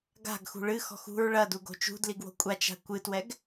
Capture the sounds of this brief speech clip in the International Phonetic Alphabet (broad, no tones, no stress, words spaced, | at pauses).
ɡa̤ɡxṳ ɭɨxɔ̤x ṳɹ ɭɐduɡo̤ t͡ʃṳdliɡwo̤ kʷʼat͡ʃa̤ kʷɨtwɛɡ